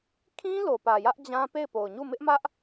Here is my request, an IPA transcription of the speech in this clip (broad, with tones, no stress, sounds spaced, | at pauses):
kʰ ĩ˦ l o˨ p ä˨ j ä˦ ʔ d͡ʑ ã˦ p e˦˨ ɪ̯ p o˨ ʊ̯ ɲ u˦˨ m ɪ˦ ʔ m ä˦ ʔ